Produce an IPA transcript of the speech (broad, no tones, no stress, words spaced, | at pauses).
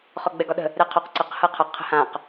χɔɡ͡bɛɡɒɗə̤ | ɾɛqʰɔq ǀəq hɤqʰʌ qʰə̤hãq